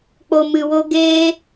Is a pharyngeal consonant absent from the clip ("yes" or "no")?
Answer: yes